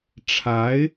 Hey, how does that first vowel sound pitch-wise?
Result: rising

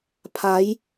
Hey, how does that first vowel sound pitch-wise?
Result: rising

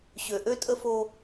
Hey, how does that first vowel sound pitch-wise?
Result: low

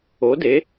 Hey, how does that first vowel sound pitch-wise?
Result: rising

